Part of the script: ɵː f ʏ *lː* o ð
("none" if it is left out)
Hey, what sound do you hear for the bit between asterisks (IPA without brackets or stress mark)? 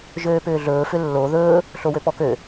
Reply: lː